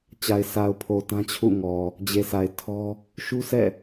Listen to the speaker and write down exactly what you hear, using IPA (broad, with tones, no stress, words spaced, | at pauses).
t͡ɕa˨ɪ̯ sʰa˨ʊ̯pʰo˨ tã˦t͡ɕʰṵ˦˨ ŋɔ˨ | d͡ʑe˨sʰa˨ɪ̯tʰɔ˦ | ʃu˦sɛ̰˦˨